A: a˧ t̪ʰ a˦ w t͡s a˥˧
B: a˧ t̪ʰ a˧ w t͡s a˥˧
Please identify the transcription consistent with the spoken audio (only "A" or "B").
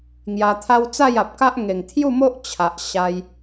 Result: A